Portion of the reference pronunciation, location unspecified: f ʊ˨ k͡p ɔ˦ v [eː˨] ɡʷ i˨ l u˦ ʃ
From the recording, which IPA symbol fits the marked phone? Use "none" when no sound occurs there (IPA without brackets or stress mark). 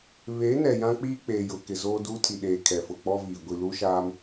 iː˨